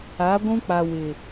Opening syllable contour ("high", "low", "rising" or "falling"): rising